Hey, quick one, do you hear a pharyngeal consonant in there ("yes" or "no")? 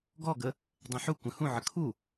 yes